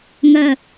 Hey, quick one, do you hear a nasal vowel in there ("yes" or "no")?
no